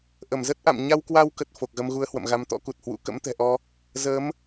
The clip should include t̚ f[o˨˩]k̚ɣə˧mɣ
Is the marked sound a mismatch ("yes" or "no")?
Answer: no